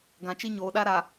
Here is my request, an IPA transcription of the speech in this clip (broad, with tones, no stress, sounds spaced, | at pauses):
ɡ ã˨ t͡ʃ i˦ ɲ oː˨ ɗ a˦ ɾ a˨